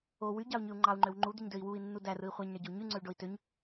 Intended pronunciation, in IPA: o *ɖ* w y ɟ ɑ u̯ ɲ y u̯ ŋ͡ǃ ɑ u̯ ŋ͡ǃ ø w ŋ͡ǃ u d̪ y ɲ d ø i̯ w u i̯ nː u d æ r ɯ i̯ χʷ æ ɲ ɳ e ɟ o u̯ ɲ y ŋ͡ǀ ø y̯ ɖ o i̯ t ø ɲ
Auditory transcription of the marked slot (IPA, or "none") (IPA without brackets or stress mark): none